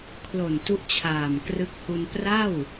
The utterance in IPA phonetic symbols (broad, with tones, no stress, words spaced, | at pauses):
kʰlo˨˩ntu˦˥ʔt͡ɕʰaː˨˩mkrɯ˦˥k̚ hu˧n pra˥˩w